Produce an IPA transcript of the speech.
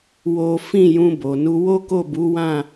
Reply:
w o˦ f ĩ˦˨ j ũ˧ b o˨ n u˧ w o˦ k o˦˨ b u˨˦ w ã˦˨

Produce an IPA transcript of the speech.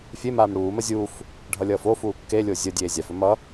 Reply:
fʲ e m aː m ɽ uː m ə zʲ uː f | ɖʱ ʌ lʲ ʌː f o f uː kː e lʲ o zʲ ə dʲ eː zʲ a f ɵ m ʌ

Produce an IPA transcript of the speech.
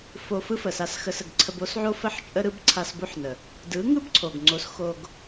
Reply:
f o˧ f ɯ˦ f ə˨ s a˧ s x ə˧ s ə˨ ɡ ǀʰ ə˧ b o˦ s ʕ o˦ f ə˧ ħ t͡ʃʼ ə˧ ɾ ɯ˧ b ǀʰ a˧ s b o˦ ħ n ə˨ | d ɯ˨˦ ŋ ɯ˦ b ǀʰ o˨ ɡ ŋ͡ǀ o˨˦ s x o˧ ɡ

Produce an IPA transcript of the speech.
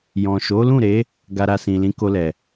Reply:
j ɔ̃˨ ʃ o˨˦ l ũ˦˨ ɾ e˨˦ | ɡ a˧ ɾ a˧ s ĩ˨ l ĩ˨˦ k o˧ l ɛ˨

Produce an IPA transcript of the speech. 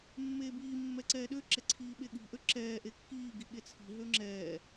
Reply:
mː eː b iː mː ɛ ǀ ɛː ɗ ø ǁ ɛ ǀʰ iː ɓ e ɠ i̤ ʔ ø ǁ ɛː ʔ e kː iː ɡ i ɠ e t͡sʰ i̤ ɦ ø ŋ͡ǁ ɛː

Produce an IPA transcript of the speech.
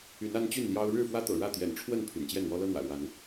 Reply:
y˨˦ n a˦ n t͡ɕ y˥˨ n l j ɑ˦ ʊ̯ ɻ ɻ̩˥˨ f w ä˦ t̪ ɤ̰˨˩ ɻ ä˥˨ t̪ j ɛ̰˨˩ n ʈ͡ʂʰ w ə˥˨ n pʰ y̰˨˩ n t͡ɕ j ɛ˥˨ n w ɔ˦ l ɤ˦ n̪ w ä̰˨˩ l w a˨˦ n

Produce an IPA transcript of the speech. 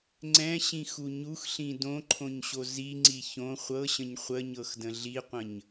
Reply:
ŋ͡ǀ ɛ̃ ɕ ĩ x u ɲ u x ɬ ĩ d õ ǃʰ õ ɲ ɕ o z i ŋ͡ǀ i ç õ χʷ ɤ ɕ ə̃ ɲ χʷ ə ɲ ɤ x d ə̃ ɮ i qʷ ə̃ ɲ

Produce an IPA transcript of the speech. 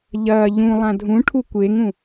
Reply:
ʎ ɐː ʎ ũ lˠ ã dʱ ũ ʈʰ u kʷ e ŋ ũ

